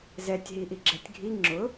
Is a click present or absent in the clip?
present